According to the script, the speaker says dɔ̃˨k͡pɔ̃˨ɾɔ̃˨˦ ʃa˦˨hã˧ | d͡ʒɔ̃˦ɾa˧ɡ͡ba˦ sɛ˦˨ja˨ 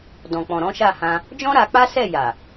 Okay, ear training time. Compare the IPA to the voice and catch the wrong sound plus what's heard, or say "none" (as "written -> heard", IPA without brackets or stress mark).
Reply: ɡ͡b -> k͡p